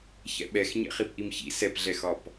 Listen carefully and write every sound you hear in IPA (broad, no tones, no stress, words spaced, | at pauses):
çɛ̰ɓɛx ɲɛ̰χipʔimçḭ sɛpɮɛxɒp